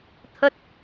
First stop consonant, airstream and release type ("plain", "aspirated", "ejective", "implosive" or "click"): aspirated